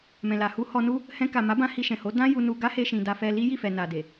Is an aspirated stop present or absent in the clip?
absent